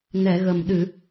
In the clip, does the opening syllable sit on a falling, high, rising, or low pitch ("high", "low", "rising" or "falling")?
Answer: low